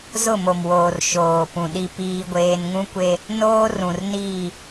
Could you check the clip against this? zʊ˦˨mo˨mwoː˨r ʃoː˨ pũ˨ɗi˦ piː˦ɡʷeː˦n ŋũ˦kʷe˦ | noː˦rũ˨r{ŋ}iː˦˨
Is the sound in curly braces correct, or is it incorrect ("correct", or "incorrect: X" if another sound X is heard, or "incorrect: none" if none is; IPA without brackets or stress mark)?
incorrect: n